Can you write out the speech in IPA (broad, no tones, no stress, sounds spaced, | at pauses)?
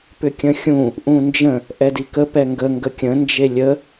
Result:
p ʏ kʲ ə̃ xʲ ũ | ʔ ũ n d͡ʒ ə̃ | ʔ ɛ d i k ə p ɛ ŋ ɡ ə ŋ ɡ ə kʲ ə̃ n d͡ʒ e lʲ ə